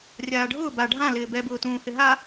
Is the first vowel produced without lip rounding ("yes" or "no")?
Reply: yes